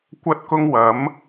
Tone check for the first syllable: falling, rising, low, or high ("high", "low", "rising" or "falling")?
high